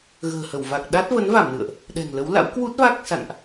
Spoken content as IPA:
ɣ ə̤ː˨˩ h ə˧˩ w v a˨˩ k̚ ɗ a˦˥ t̚ v ə˨˦ n v a˧˩ m n ɨ̰˧˨ ə̯ ʔ | ɗ ɛ̤˨˩ ŋ l ə˨˦ w l a̰˧˥ w k w u˦˥ t̚ v a˦˥ k̚ s a̰˧˨ n ʔ

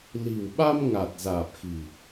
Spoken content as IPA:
l i̤˨˩ w ɓ a˧ m ŋ a˨˩ t̚ z aː˨˩ p̚ x i̤˨˩

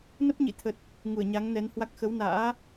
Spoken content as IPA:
n ə˦˥ p̚ ɲ ḭ˧˨ t̪ʰ ə˨˩ t̚ | ŋ u˧˩ ə̯ ɲ a˨˦ ŋ n ɛ˨˦ n h w a˦˥ k̚ x ə˨˦ w n a̰ː˧˥

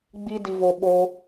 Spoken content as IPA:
ɡ͡b i˦ d i˧ v o˧ ɓ o˦

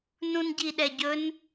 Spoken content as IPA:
n ũ n ɟ i ɗ ɛ ɟ ɵ n

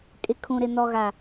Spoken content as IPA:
kʼ ɪ˨ kʰ ũ˨ ɾ ɪ˨ n ɔ˨ ɣ a˨

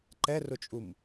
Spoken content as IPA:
ǃ ɛ r ʊ t͡ʃʼ u m

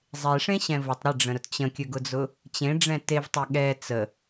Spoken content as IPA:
zˤ e ʂ ẽ ɕ ɛ̃ v ʊ tˤ ɾ ɪ ɖ͡ʐ ə̃ ɾ ʊ t t͡ɕ ə̃ kʲ ɵ ɡ ʊ d͡z ʊ | t͡ɕ ẽ ɖ͡ʐ ɛ̃ t e v tˤ ɛ ɠ ɛ t͡s ə

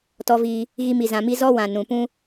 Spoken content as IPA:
t ɔ˧ v iː˧ | ɣ i˧ m i˨ z ã˨ m i˧ z ɔ˦ w ã˨ n ũ˨ p ũ˦

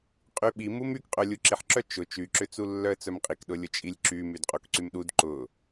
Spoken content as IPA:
qʼ y ɓ i m u m y k qʼ œ lʲ u ǁ i ħ ǁ œ t͡ʃ ʊ t͡ʃ y ǁ ʏ t͡s u lː œ ə̯ t͡s œ m qʼ i k ɗ ʊ lʲ ʊ t͡ʃʼ i lʲ ǁ y m y d qʼ o k ǀ y m ɗ u d ǃ ʊ

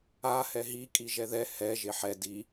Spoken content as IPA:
a h ɛ ɦ i kʼ i ʒ ɛ ð ɛ h ɛ ʒ e ħ ɛ d i

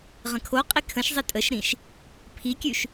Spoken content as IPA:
ʁ ə̃ kʰ o qʼ i kʰ ə̃ ʃ zˤ i tʼ ə ʃ ɾ ĩ ʃ | pʰ i kʲ ʉ ʃ

